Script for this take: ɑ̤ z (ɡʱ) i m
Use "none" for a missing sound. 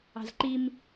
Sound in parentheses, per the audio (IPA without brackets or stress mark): ǃ